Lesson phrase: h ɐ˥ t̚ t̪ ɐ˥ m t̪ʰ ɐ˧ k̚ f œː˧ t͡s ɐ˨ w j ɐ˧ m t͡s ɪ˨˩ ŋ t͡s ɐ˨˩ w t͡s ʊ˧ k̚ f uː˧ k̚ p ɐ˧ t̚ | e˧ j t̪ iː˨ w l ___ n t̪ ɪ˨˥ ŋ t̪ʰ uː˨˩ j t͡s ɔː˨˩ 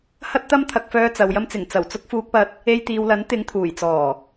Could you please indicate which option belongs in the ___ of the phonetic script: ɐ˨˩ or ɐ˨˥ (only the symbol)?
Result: ɐ˨˥